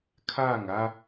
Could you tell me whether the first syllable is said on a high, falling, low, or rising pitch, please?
falling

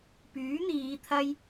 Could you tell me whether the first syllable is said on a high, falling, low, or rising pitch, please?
rising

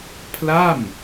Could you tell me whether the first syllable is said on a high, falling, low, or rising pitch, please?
falling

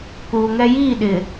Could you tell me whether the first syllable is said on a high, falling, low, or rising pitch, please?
low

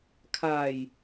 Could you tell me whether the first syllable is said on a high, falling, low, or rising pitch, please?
low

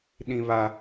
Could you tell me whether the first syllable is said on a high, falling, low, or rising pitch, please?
high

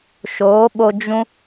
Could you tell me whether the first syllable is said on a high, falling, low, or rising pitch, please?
rising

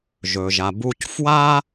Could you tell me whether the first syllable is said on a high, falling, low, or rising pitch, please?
low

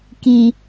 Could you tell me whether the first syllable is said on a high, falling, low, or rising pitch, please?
low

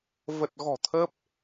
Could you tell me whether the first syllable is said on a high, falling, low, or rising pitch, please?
low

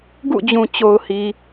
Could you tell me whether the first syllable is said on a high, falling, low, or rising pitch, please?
falling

